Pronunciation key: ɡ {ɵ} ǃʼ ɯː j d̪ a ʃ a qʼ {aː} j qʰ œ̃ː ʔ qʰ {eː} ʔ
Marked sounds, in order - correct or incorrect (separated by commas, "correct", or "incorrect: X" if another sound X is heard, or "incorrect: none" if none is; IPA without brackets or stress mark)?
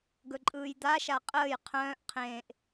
correct, incorrect: əː, incorrect: ẽː